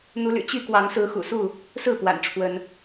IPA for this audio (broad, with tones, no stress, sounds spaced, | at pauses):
n̪ u˨˦ l y̰˨˩ t͡ɕ i˥˨ k w ɑ˨˦ ŋ s ɹ̩˨˦ x ṵ˨˩ s u˥˨ | s ɹ̩˥˨ p w a̰˨˩ n ʈ͡ʂʰ w ə˨˦ n